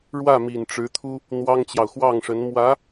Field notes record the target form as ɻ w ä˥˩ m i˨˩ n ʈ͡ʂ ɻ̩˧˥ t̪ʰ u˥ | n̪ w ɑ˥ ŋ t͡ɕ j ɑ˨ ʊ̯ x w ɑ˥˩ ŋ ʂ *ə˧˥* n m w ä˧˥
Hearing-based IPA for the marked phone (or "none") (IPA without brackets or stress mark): ə˧˥